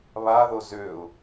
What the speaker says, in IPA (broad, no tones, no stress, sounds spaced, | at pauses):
β a ð o z ø ʊ̯